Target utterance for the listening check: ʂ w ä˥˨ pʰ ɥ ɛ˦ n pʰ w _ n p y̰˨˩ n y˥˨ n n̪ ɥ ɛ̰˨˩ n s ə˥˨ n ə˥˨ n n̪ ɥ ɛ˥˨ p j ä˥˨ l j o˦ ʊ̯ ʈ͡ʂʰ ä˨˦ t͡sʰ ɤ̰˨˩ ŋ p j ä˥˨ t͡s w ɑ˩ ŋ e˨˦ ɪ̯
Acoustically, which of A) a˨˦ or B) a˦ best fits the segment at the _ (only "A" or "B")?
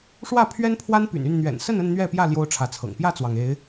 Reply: B